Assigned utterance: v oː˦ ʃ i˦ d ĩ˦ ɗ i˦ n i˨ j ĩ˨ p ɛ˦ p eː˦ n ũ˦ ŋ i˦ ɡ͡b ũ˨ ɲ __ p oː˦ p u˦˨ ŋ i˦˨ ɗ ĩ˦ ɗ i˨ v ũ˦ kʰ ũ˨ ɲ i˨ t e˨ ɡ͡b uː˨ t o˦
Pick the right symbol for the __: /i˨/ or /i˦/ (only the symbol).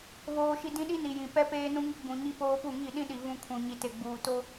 i˦